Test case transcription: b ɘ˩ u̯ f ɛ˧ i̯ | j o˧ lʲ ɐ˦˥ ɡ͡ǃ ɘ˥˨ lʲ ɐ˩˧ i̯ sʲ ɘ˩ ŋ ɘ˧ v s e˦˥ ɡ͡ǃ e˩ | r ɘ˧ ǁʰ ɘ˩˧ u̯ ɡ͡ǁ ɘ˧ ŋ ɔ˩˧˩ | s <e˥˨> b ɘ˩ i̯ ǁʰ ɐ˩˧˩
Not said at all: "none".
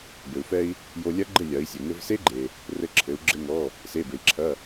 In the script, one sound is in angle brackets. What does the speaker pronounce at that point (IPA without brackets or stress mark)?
e˩˧˩